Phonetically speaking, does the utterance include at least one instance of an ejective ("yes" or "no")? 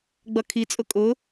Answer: yes